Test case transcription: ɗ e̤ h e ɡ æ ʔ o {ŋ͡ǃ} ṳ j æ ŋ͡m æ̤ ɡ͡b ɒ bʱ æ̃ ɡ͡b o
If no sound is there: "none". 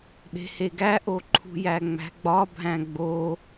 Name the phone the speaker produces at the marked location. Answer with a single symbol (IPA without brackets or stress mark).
ǃʰ